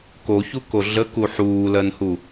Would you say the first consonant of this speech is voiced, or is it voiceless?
voiceless